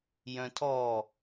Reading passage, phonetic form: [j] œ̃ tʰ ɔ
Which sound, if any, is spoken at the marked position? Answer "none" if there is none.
j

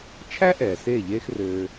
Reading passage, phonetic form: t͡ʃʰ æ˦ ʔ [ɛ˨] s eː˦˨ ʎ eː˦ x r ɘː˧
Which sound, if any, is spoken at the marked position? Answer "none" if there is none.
ɛː˨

